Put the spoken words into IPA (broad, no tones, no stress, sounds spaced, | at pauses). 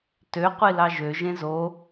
t ø qʷ i l ɑ ʒ ø ʒ ẽ z o